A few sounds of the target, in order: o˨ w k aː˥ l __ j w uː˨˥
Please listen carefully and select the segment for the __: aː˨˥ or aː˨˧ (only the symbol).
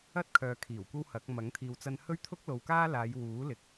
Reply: aː˨˧